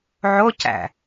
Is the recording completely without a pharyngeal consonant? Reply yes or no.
no